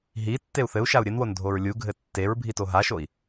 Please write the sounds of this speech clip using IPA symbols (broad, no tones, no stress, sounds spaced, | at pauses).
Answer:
ɦ i tː e u̯ θ ɘ u̯ ʃ a u̯ ɾʲ ɘ n w o n dʱ o ɹ lʲ u ɡʱ ɘ tː e ɹ bʱ i t o ɦ a ʃ o i̯